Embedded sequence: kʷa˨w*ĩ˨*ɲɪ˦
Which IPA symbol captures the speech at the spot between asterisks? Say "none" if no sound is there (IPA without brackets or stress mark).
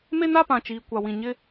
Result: ĩ˨